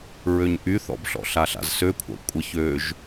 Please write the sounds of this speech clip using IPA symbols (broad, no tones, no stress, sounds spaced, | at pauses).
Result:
ɹ ø ɲ ʔ y θ ɔ̰ b ɬ ɔ̰ ɬ a ɬ a̰ z s ø kʷʰ a̰ kʷʼ ə ç ø ʒ